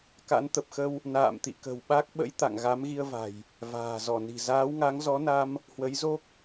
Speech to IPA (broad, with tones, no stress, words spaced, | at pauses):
ka̰˧˥nt̪ə˨˩p̚xə˧w | na̰ː˧˨mt̪ḭ˧˨kə̤˨˩wɓa˦˥k̚ ɓə̰˧˥j t̪a̰˧˨ŋɣa˨˦mɣi˧ə̯va̤˨˩j | va̤ː˨˩zɔ˧˩ni̤˨˩ zaː˨˦wŋa˨˦ŋzɔ˨˦na˧m | hwə˨˦jzo˦˥k̚